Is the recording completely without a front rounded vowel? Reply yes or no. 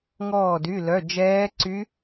no